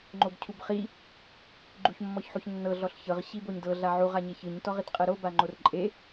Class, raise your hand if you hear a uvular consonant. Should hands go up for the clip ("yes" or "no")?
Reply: yes